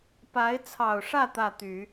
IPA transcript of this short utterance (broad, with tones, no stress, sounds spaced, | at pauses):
p a˧˥ ɪ̯ t͡sʰ ɑ˨˩ ʊ̯ ʂ ä˥˧ t̪ ä˥˩ t̪ y˨˩˦